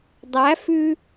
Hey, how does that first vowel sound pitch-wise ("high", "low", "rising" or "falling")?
rising